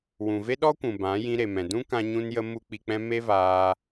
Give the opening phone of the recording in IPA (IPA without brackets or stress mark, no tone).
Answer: w